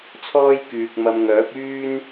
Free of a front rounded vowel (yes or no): no